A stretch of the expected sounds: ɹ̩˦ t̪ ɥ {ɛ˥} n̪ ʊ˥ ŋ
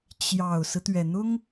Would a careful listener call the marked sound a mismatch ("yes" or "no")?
yes